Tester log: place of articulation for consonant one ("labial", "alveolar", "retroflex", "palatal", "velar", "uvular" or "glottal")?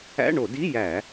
retroflex